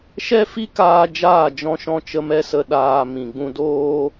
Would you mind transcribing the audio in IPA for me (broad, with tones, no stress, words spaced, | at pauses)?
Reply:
ʃɛ˦fi˦kaː˧ d͡ʒaː˦˨d͡ʒɔ̃˧ʃɔ̃˧t͡ʃə˧ mɛ˦sə˦ ɗaː˧ mĩ˨ɡ͡bũ˧doː˦